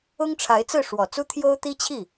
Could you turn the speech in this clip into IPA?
ʊ˥ ŋ ʈ͡ʂʰ a˧˥ ɪ̯ t͡s ɹ̩˥˩ ʂ w ɔ˨˩ t͡s u˥ t̪ʰ j o˥ ʊ̯ t̪ i˥ t͡ɕʰ i˥˩

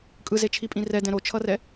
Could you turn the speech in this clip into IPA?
kʼ ɯ z e t͡ʃʰ i pʼ ĩ r ɛ d ɛ̃ ɾ o t͡ʃʰ ʌ r ɛ

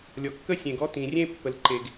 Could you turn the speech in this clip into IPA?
lʲ ɔ˩ kː ə˥ sʲ ẽ˩ ɡ ɔ˥ t ĩ˩ rʲ ẽ˥ pː ə˩ l ǃ e˩ ɡ

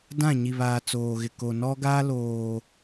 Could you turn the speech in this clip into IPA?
d ã˦˨ ɲ i˨ β aː˨ t͡s oː˨ ɣ ɪ˨ k o˨ n ɔ˦ ɡ aː˦ l oː˨

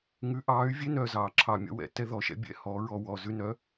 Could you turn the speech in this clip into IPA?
ŋ ʉ˨˥ ʔ ɑː˨˥ y̯ vʲ e˦ n œ˨˩ z ɑː˧˩˧ ǁʰ ɑ˨˩ mʲ ɔ̰˦ w ɛ̰˧˩˧ t ɛ˦ ð ɔ˨˩ ʃ ɛ̰˦ bʲ ɛ̰˨˥ h ɔ˨˥ ɹ ɔ˦ w ɔ˨˩ z ʉ˦ n œ˨˥

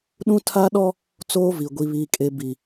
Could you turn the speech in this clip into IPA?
ɗ ũ˦ tʰ a˦ ɗ ɔ˦ | t͡s oː˦ v i˨ ɡʷ i˨ β iː˨ kʼ e˨ b i˨

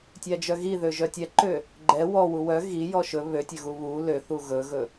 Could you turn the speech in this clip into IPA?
tʲ æ d͡ʒ œ ɣ i ð ø ʒ œ tʲ ɛ ǃ ø | ɡ͡ǃ ɛ w ɔ w u w œ ɣ i j ɔ ʃ ɵ β ø tʲ ø ɣ u β u l ø θ u ɣ ɵ ɣ ɵ

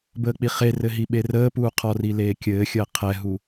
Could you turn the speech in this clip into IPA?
b əː k͡p i χ e r ɘ ɦ i ɓ e r əː p uː qʰ ɔ r i l eː kʲ ɘː xʲ əː qʰ ɛ ɦ u

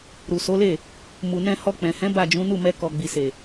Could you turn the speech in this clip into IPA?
ɾ u˨ s o˨˦ l e˦˨ | m u˨ n ɛ̃˧ h ɔ˧ k͡p ɛ̃˨ h ɛ̃˨˦ b a˦˨ d͡ʒ ũ˨˦ n u˦˨ m ɛ˧ k ɔ˨ ɡ͡b i˨ s e˨

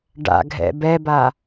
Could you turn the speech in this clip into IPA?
ɖ a̰ ɡʱ ɛ̰ b ɛ b a

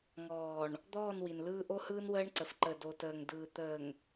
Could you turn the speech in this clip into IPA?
ŋ ɔː˨ ɳ | d̪ ɔː˦˨ n w i˨ n l ɯː˦ ʔ o˦ h ɯː˦ n w əː˦ ɳ ǀ ə˨ f ǃ ə˨ d o˨ t əː˨ ŋ d ɯː˨ t̪ əː˨ ŋ

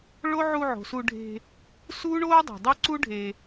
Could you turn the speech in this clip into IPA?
ɭ o˦ ʕ u˧ ʕ o̤˨ s u˧ ɖʱ e̤˧ | s uː˦ ɳ oː˦ dˤ e̤˨ dˤ o˦ ǀ u˦ ɖʱ e˧

